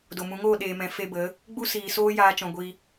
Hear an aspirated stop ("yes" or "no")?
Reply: no